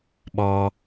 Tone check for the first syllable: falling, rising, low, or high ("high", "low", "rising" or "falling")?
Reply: low